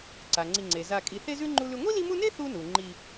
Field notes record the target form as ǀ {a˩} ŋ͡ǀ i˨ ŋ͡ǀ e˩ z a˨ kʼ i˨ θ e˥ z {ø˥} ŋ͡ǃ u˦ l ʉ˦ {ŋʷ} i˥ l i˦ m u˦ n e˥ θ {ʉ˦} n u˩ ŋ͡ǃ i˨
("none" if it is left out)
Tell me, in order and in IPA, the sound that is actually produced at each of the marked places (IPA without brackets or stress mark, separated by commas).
a˩, ʉ˥, ŋʷ, u˦